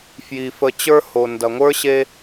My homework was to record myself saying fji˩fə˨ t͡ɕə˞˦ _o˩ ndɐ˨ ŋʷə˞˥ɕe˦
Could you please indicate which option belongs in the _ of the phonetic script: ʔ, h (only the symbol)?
h